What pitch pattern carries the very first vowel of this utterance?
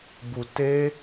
low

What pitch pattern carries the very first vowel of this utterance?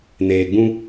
low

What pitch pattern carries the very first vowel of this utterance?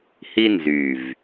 high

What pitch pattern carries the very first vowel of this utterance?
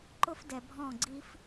high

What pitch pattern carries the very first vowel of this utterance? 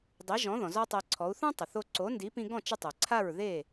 rising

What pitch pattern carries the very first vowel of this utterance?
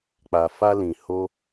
low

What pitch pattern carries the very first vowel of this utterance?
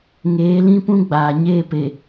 rising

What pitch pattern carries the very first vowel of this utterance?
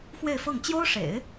falling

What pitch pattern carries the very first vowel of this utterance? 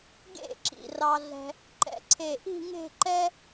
falling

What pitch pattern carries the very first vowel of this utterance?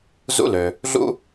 high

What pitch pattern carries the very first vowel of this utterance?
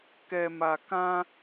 low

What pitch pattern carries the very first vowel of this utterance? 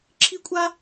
high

